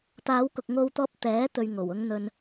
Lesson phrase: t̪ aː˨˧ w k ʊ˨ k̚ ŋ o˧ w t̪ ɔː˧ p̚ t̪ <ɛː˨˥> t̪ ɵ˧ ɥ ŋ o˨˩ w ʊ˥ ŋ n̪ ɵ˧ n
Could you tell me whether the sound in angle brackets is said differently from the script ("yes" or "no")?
no